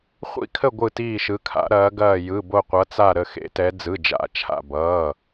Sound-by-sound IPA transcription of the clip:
χʷ ḭ˧˩ kʰ ə˧˩ ɡʷ ɯ˧˩ t iː˧˩ ʃ ɯ˩˧ kʰ a̰˩˧ ɾ ɐː˩˧ ɡ ɐː˧˩ j ɯ˩˧˩ b o˧˩ qʷ ʌ˩˧ t͡s a˧˩ ɾ ə˧˩ x ḛ˩˧ t ɛ˩˧ d͡z ɯ˩˧˩ d͡ʒ a̰˩˧˩ t͡ʃʰ a̰˧˩ b ʌː˩˧˩

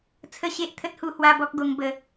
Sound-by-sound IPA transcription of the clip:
t͡sʰ ə˦ ɕ e˦ ʔ t̪ʰ ə˦ t̚ h u˧ h w a˦ b ɔ˦ k̚ ɡ o˧ ŋ b ə˨˦

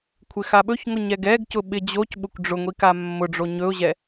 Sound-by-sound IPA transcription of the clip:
kʷʰ ɪ x a ɓ ɵ ç ŋ ʊ ɲ ɛ ɡ ɛ ɡ c ʊ ɓ ɪ d͡ʑ o c ɓ ʊ kʷ ɖ͡ʐ ʊ ŋʷ i k a mː ʊ ɖ͡ʐ o ɲ ɵ ʊ̯ ʑ ɛ

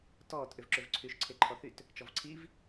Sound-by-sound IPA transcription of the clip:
t ɔː t ʔ ʏ v ǁ ʏ v ǀʰ y ʃ ǀʰ e ǃʰ ɔ θ y t | t͡ʃ ɔ v ǀʰ i v

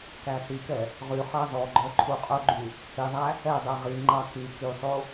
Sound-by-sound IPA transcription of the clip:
k æ s i k ɛ | ʁ y χ ɑ z ɔ ɡ͡ǃ œ ǃʰ u qʼ ɵ ɡ͡ǃ y | h i ðˤ æ | ɛ dˤ ɛ ʁ i ŋ͡ǃ ɑ k y k y sˤ o

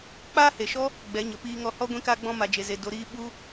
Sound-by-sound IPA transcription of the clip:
k͡p aː˦ h e˨ ʃ ɔ˦ | ɡ͡b ɛ˨˦ ɲ ə˨ p iː˧ ŋ ɔ˧ h ɔ˦ ɡʷ ĩ˧ k a˧ ɡ͡b ɔ̃˧ m a˨ d͡ʒ e˨ z e˨ d o˨ ɾ iː˧ ɓ u˦

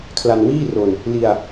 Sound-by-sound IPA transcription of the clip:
kʰ l a˧ n w iː˥˩ r o˧ n | l i˧ a̯

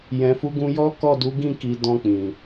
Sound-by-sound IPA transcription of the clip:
j ɛ̃˨ f u˨˦ ɡ ũ˧ j ɔ˦ k ɔ˦˨ d u˨˦ ɡ ĩ˦˨ k i˨ d ɔ̃˧ k͡p ĩ˨

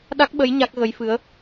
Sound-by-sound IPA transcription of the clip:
ɗ a˦˥ k̚ ɓ ə˧˥ j ɲ a˦˥ k̚ ɣ ə˧˥ j f ɨ˧˥ ə̯

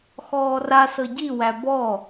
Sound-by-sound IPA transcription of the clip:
x ɔː r a s ɤ ɟ i w æ b ɔ

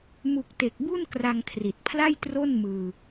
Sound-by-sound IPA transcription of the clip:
m u˨˩ k̚ t e˨˩ k̚ b u˥˩ n k r a˧ ŋ kʰ r i˨˩ t̚ pʰ l a˥˩ j t r o˥˩ n m ɯː˧

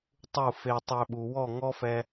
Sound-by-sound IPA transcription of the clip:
tˤ u˦˨ f e˧ tˤ ø˧ ɓ u˨ w ɔ˦˨ ŋ ɔ˦ f ɛ˧

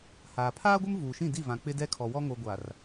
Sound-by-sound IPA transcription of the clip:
h aː˨ pʰ aː˦ ɡʷ ɪ˦ m v uː˨ ʃ ĩ˦˨ d i˦˨ v ã˨ k͡p ɪ˦ d ɛ˦ kʰ ɔ˨ w ɔ˦ ŋ o˨ ɡʷ a˨ r

